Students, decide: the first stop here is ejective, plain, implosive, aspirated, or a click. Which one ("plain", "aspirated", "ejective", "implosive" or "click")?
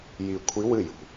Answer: aspirated